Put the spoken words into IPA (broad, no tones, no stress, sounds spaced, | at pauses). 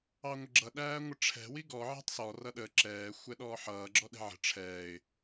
ɑ ŋʷ ə ɡ͡ǁ ʌ ɗ æː ŋʷ ɪ ʈ͡ʂʰ ɛ̤ w i ɡ ɔ ʕ ɛ̤ tˤ s ɔ r ʌ ɗ ə ǁ ɛː xʷ ɛ ɗ ɔː ħ ʌː ɡ͡ǁ ɔ ɗ ɛ̤ ʕ ə̤ ʈ͡ʂʰ ɛː ɪ̯